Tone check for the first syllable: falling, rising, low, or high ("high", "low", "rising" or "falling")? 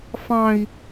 high